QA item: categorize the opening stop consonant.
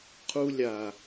aspirated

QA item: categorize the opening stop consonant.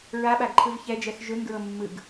implosive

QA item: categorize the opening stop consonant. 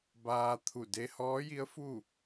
plain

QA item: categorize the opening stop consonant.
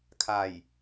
aspirated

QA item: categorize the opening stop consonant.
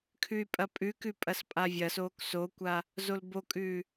aspirated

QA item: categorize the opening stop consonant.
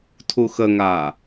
aspirated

